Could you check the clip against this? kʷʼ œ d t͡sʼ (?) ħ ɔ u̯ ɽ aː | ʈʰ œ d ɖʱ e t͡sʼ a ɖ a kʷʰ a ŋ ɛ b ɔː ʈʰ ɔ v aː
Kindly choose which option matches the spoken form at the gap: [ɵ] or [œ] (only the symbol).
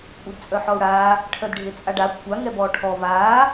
œ